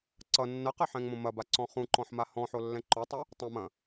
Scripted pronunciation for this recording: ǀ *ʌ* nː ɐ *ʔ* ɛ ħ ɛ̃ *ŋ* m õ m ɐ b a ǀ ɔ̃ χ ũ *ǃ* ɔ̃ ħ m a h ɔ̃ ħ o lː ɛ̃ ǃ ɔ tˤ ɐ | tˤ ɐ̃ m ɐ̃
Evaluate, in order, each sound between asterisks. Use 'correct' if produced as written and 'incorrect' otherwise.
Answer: correct, incorrect, correct, correct

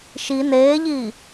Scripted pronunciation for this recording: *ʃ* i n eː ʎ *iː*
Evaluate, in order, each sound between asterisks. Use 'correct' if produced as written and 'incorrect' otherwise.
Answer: correct, correct

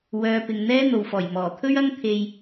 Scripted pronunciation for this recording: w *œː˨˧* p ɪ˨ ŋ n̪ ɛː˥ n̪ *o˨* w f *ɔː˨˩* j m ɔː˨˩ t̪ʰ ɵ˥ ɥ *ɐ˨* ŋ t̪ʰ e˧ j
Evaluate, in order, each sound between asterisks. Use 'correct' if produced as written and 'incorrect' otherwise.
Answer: correct, correct, correct, incorrect

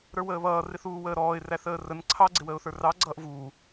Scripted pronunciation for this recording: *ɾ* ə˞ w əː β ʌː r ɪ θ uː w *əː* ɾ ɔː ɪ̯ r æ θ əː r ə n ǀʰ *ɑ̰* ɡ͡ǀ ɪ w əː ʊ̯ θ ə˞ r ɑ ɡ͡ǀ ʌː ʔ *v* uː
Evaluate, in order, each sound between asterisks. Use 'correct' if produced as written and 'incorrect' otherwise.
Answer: correct, correct, incorrect, correct

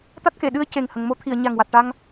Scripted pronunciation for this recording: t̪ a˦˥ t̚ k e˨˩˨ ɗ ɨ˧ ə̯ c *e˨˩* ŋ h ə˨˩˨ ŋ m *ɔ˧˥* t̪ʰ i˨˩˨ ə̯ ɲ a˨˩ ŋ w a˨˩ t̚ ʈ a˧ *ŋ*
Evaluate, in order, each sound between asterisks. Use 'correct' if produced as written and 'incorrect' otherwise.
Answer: correct, incorrect, correct

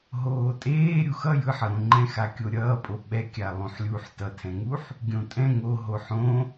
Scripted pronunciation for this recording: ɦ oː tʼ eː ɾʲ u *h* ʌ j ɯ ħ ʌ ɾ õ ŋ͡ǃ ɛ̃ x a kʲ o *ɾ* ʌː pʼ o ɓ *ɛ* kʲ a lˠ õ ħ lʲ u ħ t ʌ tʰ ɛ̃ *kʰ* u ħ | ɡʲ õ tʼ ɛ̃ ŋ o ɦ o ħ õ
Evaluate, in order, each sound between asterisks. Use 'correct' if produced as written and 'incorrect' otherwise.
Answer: incorrect, incorrect, correct, incorrect

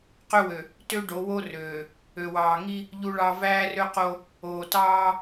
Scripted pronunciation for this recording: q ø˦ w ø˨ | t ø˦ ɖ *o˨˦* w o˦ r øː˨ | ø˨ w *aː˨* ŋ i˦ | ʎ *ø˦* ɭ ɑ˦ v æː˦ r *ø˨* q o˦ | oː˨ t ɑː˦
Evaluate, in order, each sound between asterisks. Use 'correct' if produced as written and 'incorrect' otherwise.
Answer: correct, incorrect, incorrect, incorrect

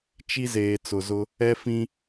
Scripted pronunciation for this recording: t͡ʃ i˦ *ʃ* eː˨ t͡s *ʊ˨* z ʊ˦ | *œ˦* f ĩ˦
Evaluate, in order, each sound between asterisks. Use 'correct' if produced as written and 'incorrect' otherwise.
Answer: incorrect, correct, incorrect

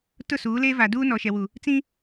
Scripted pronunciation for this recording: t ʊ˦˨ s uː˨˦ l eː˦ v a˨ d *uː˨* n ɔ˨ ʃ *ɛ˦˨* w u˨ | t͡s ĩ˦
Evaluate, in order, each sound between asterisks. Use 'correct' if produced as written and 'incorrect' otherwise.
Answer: incorrect, incorrect

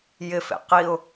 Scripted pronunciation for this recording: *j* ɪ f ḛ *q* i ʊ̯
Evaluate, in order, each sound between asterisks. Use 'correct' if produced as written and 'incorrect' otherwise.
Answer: correct, correct

